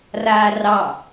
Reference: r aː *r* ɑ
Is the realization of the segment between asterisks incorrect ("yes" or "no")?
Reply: no